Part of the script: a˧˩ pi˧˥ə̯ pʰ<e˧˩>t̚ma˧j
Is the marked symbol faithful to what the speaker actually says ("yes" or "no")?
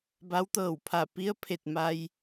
yes